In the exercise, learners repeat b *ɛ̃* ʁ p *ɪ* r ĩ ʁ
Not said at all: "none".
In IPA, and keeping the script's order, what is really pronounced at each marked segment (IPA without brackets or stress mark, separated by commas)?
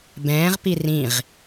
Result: ɛ̃ː, i